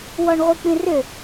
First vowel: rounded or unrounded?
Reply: rounded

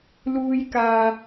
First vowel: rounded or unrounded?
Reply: rounded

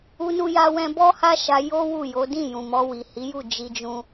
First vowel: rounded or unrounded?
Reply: rounded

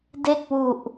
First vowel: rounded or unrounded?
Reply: unrounded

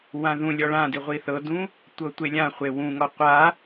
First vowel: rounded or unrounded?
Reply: unrounded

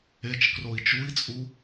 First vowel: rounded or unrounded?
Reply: unrounded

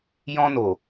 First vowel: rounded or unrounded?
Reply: rounded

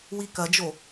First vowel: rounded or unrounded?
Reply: unrounded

